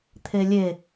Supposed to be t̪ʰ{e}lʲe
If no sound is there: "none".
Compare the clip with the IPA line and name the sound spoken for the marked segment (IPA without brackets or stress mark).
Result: e